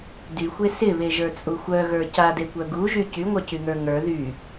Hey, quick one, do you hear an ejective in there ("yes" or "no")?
yes